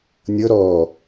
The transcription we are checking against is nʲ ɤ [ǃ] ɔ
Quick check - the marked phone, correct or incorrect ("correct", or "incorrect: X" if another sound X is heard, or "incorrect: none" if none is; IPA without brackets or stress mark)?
incorrect: ɾ